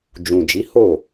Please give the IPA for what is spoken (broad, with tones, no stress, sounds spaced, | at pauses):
d͡ʒ ũ˨ d͡ʒ i˨˦ h o˦˨